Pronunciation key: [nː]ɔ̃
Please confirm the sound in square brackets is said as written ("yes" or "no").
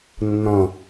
yes